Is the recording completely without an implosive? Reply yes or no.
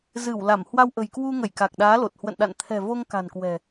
no